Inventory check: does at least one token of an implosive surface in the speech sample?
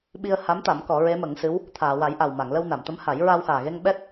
yes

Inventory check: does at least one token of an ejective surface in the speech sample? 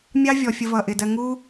no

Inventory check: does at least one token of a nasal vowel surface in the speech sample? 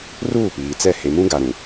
yes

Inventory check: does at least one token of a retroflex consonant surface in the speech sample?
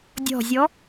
no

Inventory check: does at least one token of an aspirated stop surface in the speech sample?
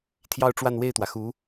yes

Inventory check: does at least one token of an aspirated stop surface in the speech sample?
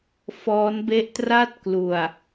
no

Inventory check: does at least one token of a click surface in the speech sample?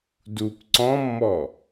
yes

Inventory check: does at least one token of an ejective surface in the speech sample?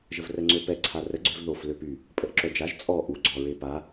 yes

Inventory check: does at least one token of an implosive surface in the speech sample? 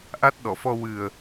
yes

